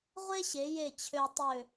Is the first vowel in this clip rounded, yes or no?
no